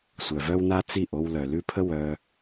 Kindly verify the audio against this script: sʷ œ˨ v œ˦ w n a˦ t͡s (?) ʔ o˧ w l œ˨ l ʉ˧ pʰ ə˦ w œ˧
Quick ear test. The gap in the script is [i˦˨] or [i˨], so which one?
i˦˨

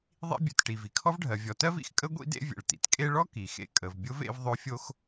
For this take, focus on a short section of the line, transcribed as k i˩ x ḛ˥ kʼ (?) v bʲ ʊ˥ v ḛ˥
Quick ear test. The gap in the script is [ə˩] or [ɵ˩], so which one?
ə˩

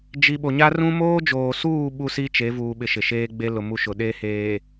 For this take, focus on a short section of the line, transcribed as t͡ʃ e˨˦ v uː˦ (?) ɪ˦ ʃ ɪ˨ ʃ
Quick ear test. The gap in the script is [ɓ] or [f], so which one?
ɓ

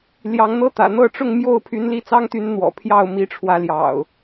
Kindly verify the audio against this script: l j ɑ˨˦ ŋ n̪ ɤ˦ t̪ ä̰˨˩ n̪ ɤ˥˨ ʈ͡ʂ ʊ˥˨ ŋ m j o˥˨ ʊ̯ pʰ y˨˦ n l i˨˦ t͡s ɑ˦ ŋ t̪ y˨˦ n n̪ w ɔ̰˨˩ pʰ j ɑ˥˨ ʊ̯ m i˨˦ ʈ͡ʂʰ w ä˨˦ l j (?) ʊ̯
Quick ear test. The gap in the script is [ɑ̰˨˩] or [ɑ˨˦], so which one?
ɑ̰˨˩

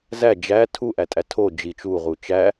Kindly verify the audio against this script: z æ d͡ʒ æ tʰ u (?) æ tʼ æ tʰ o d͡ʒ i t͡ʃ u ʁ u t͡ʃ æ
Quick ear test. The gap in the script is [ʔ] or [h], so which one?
ʔ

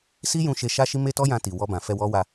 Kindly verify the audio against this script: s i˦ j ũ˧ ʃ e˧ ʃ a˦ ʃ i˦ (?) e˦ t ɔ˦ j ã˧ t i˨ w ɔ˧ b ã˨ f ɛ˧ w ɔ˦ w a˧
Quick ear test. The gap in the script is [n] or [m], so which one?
m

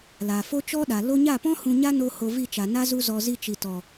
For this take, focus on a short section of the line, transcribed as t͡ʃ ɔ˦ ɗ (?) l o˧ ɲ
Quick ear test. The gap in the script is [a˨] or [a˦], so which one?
a˨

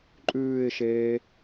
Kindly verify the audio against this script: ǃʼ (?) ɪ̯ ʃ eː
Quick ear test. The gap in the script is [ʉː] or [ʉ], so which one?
ʉː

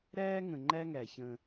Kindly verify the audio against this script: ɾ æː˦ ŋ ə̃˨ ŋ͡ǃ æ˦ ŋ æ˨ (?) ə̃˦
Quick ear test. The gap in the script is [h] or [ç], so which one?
ç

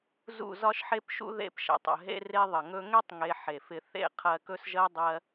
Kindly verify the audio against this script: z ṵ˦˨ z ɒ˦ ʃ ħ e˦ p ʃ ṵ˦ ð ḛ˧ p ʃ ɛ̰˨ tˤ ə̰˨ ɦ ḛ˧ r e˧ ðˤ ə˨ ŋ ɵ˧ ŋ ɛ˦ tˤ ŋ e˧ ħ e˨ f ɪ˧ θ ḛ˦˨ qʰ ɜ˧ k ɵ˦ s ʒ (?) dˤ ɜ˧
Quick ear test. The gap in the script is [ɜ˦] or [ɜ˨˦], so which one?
ɜ˦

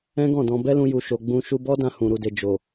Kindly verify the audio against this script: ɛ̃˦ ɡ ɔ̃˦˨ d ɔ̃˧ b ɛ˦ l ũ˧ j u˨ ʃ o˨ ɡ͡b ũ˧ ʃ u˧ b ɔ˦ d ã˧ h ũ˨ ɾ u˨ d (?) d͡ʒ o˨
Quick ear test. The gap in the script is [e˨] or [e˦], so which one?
e˨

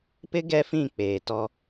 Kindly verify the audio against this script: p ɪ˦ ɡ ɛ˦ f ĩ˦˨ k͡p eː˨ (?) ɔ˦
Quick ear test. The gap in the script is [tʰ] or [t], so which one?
t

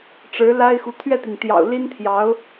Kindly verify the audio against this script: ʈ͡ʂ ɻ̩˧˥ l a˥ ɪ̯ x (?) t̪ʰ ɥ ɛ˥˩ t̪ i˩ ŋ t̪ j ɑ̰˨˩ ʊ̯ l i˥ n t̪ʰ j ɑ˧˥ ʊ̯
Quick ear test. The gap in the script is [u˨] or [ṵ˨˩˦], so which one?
u˨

